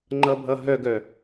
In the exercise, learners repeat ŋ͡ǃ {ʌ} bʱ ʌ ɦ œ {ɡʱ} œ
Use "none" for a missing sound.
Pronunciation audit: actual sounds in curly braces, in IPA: ʌ, ɡ

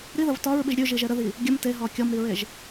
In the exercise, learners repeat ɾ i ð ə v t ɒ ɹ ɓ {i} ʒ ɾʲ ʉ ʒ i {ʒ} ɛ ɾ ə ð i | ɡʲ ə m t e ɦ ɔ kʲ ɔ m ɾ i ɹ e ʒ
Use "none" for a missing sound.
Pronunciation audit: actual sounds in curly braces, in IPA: i, ʒ

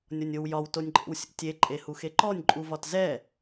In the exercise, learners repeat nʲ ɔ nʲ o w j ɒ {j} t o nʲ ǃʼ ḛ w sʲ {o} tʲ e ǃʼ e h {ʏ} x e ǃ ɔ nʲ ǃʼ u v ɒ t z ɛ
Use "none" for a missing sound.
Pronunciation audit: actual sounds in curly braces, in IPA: w, o̰, u

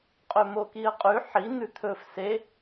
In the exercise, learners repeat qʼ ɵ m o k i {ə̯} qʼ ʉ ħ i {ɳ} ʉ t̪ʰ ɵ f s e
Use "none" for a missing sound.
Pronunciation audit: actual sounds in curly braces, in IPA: ə̯, n̪

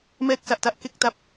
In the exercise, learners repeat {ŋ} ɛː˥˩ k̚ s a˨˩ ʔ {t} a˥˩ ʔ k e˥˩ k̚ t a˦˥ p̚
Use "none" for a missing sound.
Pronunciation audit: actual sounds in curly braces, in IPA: m, t

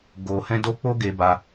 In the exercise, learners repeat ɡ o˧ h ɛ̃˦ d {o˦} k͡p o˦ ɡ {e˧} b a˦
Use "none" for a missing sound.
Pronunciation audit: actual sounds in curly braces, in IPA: o˦, e˦

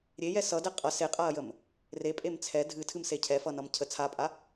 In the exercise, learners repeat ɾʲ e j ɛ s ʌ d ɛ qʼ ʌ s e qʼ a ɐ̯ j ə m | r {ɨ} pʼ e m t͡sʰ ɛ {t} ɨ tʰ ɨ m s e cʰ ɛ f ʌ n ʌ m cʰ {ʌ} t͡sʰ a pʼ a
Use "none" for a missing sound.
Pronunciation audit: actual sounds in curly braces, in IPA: e, dʱ, ə

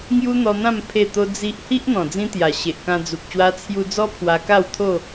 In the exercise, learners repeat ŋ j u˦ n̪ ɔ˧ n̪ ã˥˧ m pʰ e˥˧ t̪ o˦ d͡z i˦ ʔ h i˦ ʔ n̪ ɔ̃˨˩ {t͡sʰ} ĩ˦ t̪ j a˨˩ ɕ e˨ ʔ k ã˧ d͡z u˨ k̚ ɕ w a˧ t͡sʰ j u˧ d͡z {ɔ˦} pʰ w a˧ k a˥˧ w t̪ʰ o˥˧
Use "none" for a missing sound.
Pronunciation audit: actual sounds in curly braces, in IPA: d͡z, ɔ˦

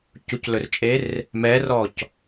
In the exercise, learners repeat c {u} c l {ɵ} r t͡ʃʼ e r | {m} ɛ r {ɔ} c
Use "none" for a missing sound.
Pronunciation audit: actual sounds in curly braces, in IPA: u, ɵ, m, ɔ

